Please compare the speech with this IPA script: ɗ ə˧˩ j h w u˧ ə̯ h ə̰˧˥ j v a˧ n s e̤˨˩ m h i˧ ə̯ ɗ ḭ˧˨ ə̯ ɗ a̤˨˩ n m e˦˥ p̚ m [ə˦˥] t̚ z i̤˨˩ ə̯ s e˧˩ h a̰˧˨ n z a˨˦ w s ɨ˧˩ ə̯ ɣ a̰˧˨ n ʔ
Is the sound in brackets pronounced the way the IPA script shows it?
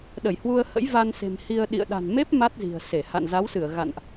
no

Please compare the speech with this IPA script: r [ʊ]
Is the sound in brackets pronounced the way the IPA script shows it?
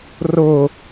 yes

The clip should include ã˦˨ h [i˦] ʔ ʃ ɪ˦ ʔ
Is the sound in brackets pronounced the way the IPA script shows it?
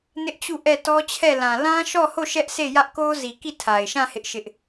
no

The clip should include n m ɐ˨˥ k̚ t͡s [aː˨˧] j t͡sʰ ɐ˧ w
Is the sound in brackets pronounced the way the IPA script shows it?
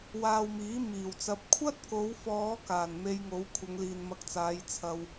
yes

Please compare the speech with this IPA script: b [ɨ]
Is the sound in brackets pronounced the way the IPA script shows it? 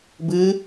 yes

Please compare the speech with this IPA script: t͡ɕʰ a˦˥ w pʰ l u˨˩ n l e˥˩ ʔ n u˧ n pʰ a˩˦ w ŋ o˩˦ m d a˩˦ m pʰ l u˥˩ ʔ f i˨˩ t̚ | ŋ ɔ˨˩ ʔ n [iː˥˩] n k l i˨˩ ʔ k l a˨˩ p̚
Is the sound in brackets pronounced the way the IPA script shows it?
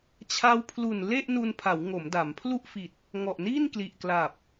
yes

